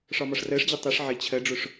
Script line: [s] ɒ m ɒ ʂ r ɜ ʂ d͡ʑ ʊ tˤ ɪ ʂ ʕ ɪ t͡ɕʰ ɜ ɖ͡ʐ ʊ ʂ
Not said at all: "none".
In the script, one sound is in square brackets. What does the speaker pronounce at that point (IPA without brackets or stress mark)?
ʂ